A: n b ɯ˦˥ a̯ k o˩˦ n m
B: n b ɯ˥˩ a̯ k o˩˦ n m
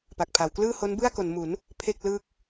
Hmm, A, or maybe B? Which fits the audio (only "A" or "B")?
B